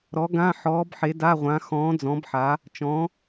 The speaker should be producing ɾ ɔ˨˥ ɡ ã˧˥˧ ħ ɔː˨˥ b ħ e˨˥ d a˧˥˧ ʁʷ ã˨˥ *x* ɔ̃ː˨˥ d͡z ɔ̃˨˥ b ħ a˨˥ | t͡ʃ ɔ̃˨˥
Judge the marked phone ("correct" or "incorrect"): correct